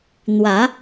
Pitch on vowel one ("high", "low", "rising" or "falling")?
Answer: rising